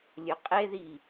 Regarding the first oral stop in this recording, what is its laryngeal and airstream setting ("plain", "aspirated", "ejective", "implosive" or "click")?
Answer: ejective